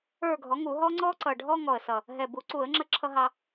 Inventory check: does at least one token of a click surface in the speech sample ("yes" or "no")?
yes